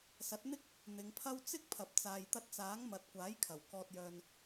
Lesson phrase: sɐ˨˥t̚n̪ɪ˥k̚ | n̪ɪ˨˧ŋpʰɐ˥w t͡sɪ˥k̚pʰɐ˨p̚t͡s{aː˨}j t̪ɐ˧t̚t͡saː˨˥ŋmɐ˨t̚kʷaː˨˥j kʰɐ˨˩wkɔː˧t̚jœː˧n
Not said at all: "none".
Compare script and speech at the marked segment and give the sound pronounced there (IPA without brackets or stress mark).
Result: aː˨